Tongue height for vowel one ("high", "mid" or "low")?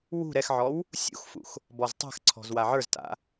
high